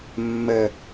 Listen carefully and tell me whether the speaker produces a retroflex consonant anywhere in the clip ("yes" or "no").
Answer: no